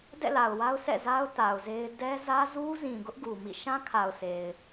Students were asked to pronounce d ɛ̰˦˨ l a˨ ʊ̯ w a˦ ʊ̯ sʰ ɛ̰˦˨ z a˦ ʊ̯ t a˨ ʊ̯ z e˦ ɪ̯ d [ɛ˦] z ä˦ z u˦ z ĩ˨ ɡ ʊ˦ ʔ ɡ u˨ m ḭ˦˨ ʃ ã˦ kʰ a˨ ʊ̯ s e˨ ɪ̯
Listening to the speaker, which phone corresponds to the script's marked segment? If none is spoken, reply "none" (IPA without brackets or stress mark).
ɛ˦